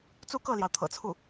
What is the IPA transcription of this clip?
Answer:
t͡s u˥˧ k ɤ˥˩ l j ɑ˩ ʊ̯ t̪ʰ ɤ̰˨˩ t͡sʰ u˥˩

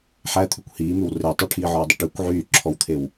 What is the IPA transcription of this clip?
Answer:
ħ æ t̪ʰ ʉ kʷ h iː m ʉ w r e tˤ ɵ ʈʰ iː ʕ ɔ w dˤ ɵ ʈ y kʷ ʕ yː ǁʰ ɔ w t̪ʰ e w

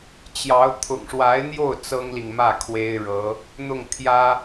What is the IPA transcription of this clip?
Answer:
t͡ɕ j ɑ˧˥ ʊ̯ t̪ʰ ʊ̰˨˩ ŋ ʂ w a˧˥ ɪ̯ n̪ j o˥˩ ʊ̯ t͡s ɤ˥ ŋ l i˨ ŋ m ä˥˩ kʰ w e˥ ɪ̯ ɻ ɤ˧˥ | n̪ ʊ˥˩ ŋ t̪ʰ j ä˥

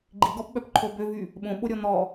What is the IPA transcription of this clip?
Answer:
ɡ͡ǃ i ɡ ɔ p ɓ œ p ǃʰ o b ø v y | ɓ õ ɓ o ɾʲ ɔ n̪ ɔ

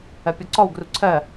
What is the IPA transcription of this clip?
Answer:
ɜ pʲ ɔ ǀ ɔ w ɡ r u ǀʰ ɜ

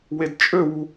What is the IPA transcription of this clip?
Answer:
w e d t͡ʃʼ ø w u

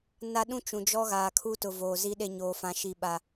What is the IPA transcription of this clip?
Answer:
n a˦ ɗ ũ˦ t͡ʃ ũ˨ d͡ʒ ɔ˦ ɣ aː˨ kʰ u˦ t ʊ˨ v oː˨ z i˦ ɗ e˦ ɲ oː˨ f ã˨ ʃ i˨ ɓ a˨

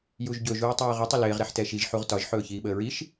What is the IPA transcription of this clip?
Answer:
j u ʒ ɟ ɵ ʒ uː tˤ uː ʁ ə tˤ ə l ɪː ʁ ɾ ɛ ħ t ɛ ʃ i ʒ ħ u ʁ t ɒ ʒ ħ ɵː ç iː ɓ əː ɹ i ʃ

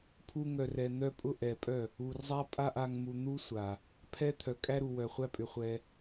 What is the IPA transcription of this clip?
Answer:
pʰ u˦ ŋ œ˧ r ɛ˧ n̪ œ˦ pʼ ʊ˦ ʔ ɛ˨ pʼ œ˦˨ | u˨ r zˤ a˦ pʼ a˦ ʔ a˧ ŋ m u˧ n̪ u˦ sʷ a˨ | pʰ ɛ˦ t̪ʰ œ˨ kʼ æ˦ ɾ u˨ w œ˨ χʷ æ˦ pʼ ʏ˨ χʷ ɛ˧

